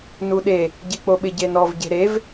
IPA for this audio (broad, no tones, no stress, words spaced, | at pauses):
nuɗe | ɟek͡poɓɪ ɟenɔv ɟe̤ɾev